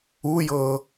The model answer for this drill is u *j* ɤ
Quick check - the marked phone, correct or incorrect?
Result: correct